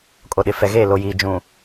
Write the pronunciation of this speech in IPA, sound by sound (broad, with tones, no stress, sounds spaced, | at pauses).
kʼ o˨ ɗ ɪ˨ f ɛ˨ ɣ eː˦˨ l o˨ j iː˨ d͡ʒ ũ˨